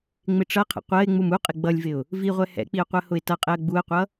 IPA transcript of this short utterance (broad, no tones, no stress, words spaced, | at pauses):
ŋ͡mɪʈ͡ʂʌqʰə̰ qʷɜɪ̯ŋ͡mum uqʼɪ ɡ͡bʌlʲvɪʊ̯ | viʁʷɛ hɛ̰k͡piʊ̯ qʷɜhʊɪ̯tʌqʼɛə̯ ɡ͡buə̯qʷʌ